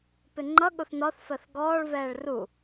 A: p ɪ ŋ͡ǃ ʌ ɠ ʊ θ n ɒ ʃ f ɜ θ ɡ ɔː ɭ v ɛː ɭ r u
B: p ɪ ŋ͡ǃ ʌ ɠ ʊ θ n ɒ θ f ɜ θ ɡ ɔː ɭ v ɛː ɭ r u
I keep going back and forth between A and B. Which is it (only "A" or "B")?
B